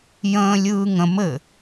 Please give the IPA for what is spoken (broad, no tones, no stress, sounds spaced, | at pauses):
j ə̃ː lʲ ɯː ŋ ə̃ m ɘ